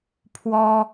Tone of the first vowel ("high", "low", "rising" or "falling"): high